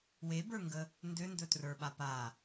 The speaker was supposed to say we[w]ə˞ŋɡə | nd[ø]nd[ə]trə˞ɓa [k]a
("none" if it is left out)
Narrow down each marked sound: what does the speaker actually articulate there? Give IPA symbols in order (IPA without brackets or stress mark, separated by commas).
b, ø, ɵ, p